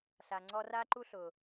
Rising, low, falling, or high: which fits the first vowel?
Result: low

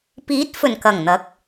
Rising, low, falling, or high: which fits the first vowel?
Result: rising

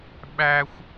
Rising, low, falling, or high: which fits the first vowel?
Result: high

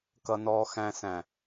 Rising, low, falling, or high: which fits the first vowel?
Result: low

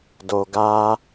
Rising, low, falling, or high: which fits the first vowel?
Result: low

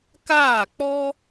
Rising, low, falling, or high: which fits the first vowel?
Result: falling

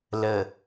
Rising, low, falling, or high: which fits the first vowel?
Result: low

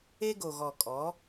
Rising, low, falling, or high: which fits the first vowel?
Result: high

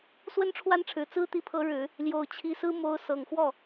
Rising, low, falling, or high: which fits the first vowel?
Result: high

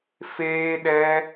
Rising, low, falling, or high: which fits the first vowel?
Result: high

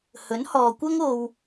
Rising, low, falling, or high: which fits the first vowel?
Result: rising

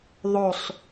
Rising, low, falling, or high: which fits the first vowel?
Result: low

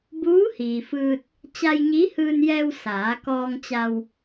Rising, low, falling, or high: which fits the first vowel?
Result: rising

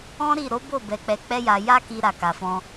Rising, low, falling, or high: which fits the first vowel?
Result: high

